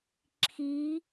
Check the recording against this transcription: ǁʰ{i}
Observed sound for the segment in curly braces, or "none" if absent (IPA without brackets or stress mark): i